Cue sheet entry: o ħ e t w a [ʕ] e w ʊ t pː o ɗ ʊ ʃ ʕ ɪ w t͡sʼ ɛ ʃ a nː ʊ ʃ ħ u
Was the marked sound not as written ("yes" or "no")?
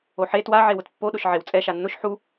no